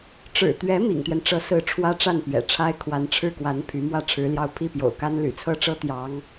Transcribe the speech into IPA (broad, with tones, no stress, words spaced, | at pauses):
ʈ͡ʂɻ̩˨˩t̪ɥɛ˧˥ mḭ˨˩ŋt̪ɥɛ˦nʈ͡ʂɤ˧˥sɹ̩˧˥ ʈ͡ʂʰwä˥ʈ͡ʂa˥˩npɥɛ̰˨˩ʈ͡ʂʰa˥ɪ̯ kʰwa˧˥nʈ͡ʂʰɻ̩˥˩kwa˧˥n pʰy˧˥mwä˥˩ʈ͡ʂʰɻ̩˧˥ljɑ˥ʊ̯ pʰi˥˩pjo̰˨˩ʊ̯ka˥n ly̰˨˩t͡sʰɤ˥ʈ͡ʂɤ˥ t̪jɑ˧˥ŋ